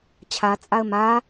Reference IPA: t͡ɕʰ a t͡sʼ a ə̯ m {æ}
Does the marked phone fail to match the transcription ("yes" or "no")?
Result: yes